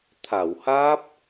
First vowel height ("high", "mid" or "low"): low